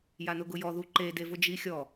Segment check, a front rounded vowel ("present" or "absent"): absent